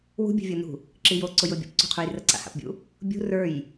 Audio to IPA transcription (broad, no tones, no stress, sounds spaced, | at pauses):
w ṳ bʲ ṳ vʲ o n ṳ | ǁ i j o ǀ ʊ j ʊ bʲ ṵ p ǀ ṳ qʰ u j r ə ǀ a̰ h a̰ p bʲ ṵ | bʲ ṳ r ə˞ j